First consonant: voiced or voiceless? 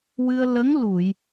voiced